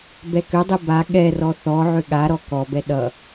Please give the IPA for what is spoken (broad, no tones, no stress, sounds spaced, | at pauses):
b ɛ k ʏ dˤ i b a ɠ ɛ r ɔ θ ɔ ʕ ʏ ɠ a ɾ ɔ k ɔ b ɛ ɗ ʌ